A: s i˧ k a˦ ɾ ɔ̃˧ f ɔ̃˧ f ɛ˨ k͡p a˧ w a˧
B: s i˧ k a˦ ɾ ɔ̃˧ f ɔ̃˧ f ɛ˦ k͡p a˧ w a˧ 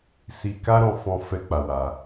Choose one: B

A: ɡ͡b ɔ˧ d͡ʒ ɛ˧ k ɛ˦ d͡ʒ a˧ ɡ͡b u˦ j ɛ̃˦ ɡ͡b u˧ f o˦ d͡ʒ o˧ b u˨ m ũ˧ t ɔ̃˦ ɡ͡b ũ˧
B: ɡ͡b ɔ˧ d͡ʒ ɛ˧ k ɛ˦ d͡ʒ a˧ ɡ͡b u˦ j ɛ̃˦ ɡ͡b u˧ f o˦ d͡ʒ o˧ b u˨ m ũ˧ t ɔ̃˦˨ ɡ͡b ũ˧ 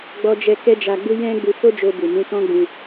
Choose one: A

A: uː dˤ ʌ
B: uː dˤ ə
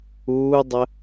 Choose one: B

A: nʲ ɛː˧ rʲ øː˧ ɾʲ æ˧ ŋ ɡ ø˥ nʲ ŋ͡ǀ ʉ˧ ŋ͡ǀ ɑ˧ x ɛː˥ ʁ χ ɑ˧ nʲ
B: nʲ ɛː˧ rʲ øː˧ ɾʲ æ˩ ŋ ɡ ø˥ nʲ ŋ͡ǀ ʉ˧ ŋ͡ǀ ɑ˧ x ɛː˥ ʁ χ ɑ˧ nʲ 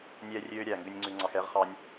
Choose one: B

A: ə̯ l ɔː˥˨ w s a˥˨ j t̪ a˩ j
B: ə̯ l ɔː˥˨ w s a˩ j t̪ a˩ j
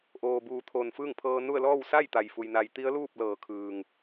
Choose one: A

